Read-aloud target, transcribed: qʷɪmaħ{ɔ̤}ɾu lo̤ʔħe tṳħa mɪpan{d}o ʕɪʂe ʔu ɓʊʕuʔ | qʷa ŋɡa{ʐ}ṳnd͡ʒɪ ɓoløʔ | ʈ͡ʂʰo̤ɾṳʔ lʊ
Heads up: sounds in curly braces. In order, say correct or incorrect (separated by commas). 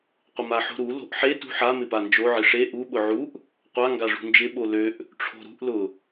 incorrect, incorrect, correct